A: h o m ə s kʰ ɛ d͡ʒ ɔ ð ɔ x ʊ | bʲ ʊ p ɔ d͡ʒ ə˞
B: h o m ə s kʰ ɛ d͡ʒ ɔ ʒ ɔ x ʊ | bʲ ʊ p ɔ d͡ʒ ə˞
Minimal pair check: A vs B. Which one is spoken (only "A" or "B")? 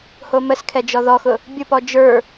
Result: A